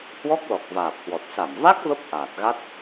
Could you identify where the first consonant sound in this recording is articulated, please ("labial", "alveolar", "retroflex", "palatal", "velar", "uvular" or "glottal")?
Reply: glottal